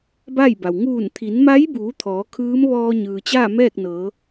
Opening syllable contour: falling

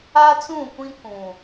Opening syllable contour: high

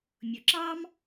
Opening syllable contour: low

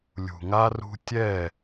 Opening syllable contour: low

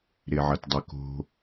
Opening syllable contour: low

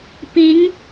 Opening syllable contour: rising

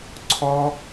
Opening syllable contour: high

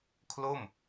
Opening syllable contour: falling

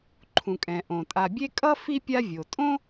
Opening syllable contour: low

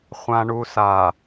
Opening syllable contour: low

